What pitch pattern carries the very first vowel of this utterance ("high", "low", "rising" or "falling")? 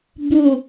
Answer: low